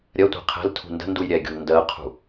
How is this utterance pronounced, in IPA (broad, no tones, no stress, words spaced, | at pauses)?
ɾʲɜtʷɛ̤ qʰɛ̤l tʰṳndə̤nduj ɾʲɛɡʲṳl ndɜqʰṳ